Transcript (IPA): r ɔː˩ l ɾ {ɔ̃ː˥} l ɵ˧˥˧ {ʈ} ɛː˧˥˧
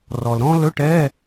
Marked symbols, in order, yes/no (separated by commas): yes, yes